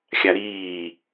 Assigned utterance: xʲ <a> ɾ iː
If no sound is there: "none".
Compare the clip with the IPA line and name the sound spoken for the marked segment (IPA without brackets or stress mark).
a